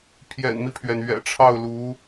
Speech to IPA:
pʰ j ɛ̰˨˩ n m i˦ pʰ ɥ ɛ˩ n ɥ ɛ̰˨˩ ʈ͡ʂʰ ɑ˥˩ ʊ̯ l u˧˥

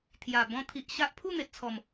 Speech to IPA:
t̪ʰ j a˨˩ b ɔ̃˧ t̪ʰ i˨ ʔ ɕ a˦ ʔ pʰ u˥˧ n̪ e˨ t̚ t͡sʰ ɔ˨˩ m

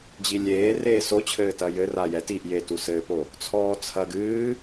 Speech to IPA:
d͡ʑ i lʲ eː r eː s o t͡ɕʰ ɘː t ɐ j ɘ r a j ɛ t i ʔ j e t u s ɘː p o | t͡sʰ ɔː t͡sʰ ɐ ɡ ɨː

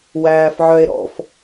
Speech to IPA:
w æː f ʕ œ e̯ ɾ ɔ̰ f

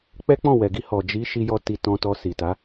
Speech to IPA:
k͡p ɛ˦ k͡p ɔ̃˦˨ w ɛ˨ ɡ i˧ h ɔ˨ d͡ʒ i˨˦ ʃ i˧ j ɔ˧ t i˧ t ɔ̃˧ t ɔ˧ s i˨ t a˨˦

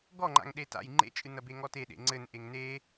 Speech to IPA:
ɡ ɔ ŋ͡ǃ a̰ ŋ ɗ e t a̰ j ŋ͡ǃ ḛ t͡ʃʼ ɨ n ɐ b e ŋ ɔ t e ɗ ḛ ŋ͡ǀ ɘ n ʔ e ŋ n e

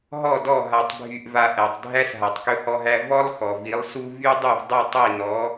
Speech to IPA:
ɦ ɔ˥˩ d ɔ˥˩ ɦ a˧ tˤ bʱ y˧ ʔ v a˧ ʔ æ˩ tˤ dʱ æ˥ s ɦ a˩ tˤ k ɵ˧ h ɔ˧ ɦ æ˧ v ɔ˥ lˠ x ɔ˩ v i˩˥ lˠ s u˥ v y˥ dˤ u˥˩ v dˤ y˥˩ tˤ i˥˩ n ɔ˩˥

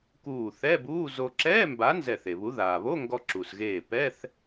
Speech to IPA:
k uː˧˩ θ ɛ˧˥˧ b uː˧˥˧ z o˧ ǁ ɛː˧˥˧ m b a˨˥ n z ɛ˧˩ θ e˩ β u˨˥ ð aː˩ β o˧˥˧ ŋ ɡ ɔ˧ ǁ u˩ s ɣ eː˧˩ p ɛː˧˥˧ θ

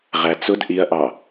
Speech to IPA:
ʁ æ t͡s ʊ d ʔ i ɐ̯ ʔ ɑ

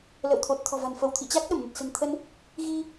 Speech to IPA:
l ə̰˧˨ w t̪ʰ o˨˩ t̚ t̪ʰ ɔ̤˨˩ v a̤˨˩ n f ə˧˩ w t̪ʰ ḭ˧˨ t͡ɕ a˦˥ k̚ ɗ ə˧˩ m n ə˨˩ t̚ s ə̤˨˩ n t̪ʰ ə˧ n | ɣ i˧

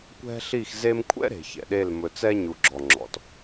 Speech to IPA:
kʷ ɛ̤˦ ɬ i˦˨ x z e˦ m kʷʰ ɛ̰˦ ɾ e̤˨ ç ɛ̰˨ ɗ e˦˨ l m ɵ˨ t͡s ɛ˦ ɲ u˨ ɡ͡ǁ ɔ˨ ŋ͡ǁ ɔ̰˨ t

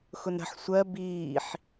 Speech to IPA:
x ʊ n ɾ ə̤ ħ sʷ ɜ b iː ħ

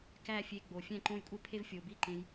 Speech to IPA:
k æ˦˨ fʲ e˧ ɡ͡b o˨ fʲ æ̃˦˨ ǃ õ˦˨ j kʷʼ e˦ pʰ e˦ v fʲ o˨ b i˦˨ ǃ ẽ˧ j

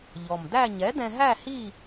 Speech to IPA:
ʎ ɔ˨˩ m d æ˥˧ ɲ ɛ˨˥ d ɛ̃˧ ɦ æ˥˧ h i˥˧

